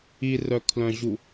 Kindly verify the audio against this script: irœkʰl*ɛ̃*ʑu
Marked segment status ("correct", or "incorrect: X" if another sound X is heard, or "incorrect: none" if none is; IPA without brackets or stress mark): incorrect: œ̃